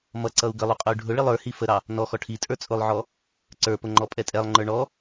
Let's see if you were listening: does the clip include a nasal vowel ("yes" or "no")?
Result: no